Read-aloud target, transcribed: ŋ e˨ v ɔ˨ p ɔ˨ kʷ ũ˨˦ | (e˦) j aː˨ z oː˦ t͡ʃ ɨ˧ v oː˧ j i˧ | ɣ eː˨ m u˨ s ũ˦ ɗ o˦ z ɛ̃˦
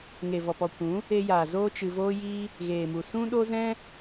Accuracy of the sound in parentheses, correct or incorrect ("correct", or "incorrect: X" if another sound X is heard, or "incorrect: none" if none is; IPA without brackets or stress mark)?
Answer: incorrect: e˧